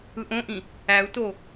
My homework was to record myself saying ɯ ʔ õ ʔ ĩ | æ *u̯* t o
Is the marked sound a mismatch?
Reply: no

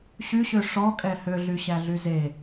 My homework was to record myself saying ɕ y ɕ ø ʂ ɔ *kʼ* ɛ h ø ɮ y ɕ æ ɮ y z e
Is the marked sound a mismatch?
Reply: no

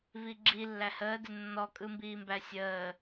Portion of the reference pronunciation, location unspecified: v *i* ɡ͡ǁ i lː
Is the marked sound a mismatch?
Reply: no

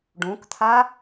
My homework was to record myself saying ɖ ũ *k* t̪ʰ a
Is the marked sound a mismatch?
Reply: no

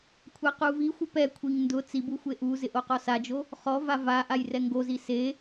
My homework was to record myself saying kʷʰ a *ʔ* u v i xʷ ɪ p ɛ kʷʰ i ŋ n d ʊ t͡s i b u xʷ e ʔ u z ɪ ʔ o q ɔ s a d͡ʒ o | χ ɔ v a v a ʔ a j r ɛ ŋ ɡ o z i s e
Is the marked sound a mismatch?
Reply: yes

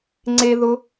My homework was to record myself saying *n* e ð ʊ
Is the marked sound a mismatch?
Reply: yes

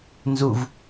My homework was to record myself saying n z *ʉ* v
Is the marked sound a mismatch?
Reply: yes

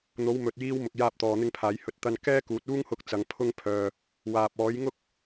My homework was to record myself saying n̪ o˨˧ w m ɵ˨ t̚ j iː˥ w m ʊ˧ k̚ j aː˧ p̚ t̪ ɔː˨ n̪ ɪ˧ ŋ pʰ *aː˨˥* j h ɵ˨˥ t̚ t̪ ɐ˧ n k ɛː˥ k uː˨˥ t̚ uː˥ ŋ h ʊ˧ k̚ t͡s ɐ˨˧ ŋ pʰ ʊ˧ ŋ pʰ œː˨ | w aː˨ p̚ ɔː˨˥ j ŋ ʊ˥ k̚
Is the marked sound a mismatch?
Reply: yes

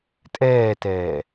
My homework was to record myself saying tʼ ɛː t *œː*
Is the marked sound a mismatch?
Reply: yes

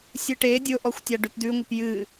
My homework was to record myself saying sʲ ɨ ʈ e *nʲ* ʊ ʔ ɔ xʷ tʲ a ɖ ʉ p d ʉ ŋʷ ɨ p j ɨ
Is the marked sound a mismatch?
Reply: yes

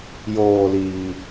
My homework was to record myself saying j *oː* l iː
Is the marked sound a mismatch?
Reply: no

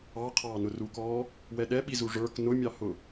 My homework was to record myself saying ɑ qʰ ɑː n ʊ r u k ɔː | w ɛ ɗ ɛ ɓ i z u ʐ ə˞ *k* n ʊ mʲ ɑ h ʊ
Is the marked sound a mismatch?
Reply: no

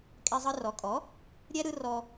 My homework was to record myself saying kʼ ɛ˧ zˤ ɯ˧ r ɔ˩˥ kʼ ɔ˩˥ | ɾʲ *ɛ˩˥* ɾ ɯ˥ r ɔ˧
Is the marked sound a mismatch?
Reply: yes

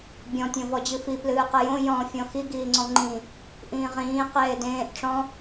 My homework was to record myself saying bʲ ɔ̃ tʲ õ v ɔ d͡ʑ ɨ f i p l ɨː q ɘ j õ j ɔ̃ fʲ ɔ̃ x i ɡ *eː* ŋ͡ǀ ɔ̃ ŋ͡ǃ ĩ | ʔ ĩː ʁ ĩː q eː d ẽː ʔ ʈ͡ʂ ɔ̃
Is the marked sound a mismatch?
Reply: yes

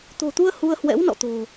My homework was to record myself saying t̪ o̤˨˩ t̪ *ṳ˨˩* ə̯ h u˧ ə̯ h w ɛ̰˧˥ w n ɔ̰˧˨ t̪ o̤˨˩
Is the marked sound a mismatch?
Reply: yes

